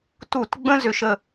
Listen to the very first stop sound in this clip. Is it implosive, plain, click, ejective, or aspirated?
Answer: plain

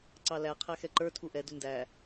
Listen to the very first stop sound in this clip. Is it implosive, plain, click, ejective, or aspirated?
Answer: click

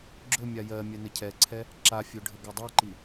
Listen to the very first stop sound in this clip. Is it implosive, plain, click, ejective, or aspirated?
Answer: click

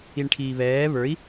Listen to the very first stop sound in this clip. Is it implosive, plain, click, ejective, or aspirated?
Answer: aspirated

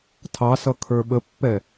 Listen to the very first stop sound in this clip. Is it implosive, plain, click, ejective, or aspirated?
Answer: aspirated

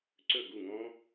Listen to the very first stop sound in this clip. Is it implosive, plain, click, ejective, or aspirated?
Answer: click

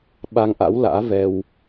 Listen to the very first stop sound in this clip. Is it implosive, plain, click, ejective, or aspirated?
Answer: implosive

